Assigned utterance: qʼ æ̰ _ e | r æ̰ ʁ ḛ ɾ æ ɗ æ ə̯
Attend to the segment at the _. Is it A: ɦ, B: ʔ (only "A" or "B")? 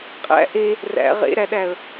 B